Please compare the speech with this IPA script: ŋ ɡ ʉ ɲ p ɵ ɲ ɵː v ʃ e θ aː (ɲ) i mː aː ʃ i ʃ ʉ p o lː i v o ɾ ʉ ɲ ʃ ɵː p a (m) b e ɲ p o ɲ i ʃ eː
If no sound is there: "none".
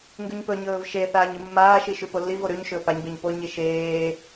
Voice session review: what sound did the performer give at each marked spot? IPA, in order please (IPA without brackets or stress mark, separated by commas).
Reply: ɲ, ɲ